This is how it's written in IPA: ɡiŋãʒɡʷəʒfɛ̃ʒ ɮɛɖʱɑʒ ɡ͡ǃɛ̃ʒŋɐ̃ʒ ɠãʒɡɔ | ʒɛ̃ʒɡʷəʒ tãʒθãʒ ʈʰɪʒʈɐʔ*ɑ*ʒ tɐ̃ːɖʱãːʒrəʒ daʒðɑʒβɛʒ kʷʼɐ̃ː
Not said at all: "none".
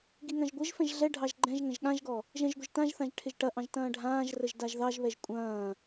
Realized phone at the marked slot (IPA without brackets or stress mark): ɑ̃